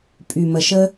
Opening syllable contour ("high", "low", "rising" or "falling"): low